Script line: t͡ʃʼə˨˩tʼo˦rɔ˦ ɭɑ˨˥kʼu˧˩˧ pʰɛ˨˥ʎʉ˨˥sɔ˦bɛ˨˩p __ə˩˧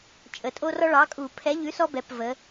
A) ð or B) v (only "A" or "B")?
B